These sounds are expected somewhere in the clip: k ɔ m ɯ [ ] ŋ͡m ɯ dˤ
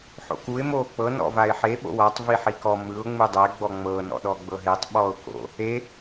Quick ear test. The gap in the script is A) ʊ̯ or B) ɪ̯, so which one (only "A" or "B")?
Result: A